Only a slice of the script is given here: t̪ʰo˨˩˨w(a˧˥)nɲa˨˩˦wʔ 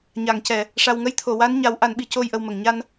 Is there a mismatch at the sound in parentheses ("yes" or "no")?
no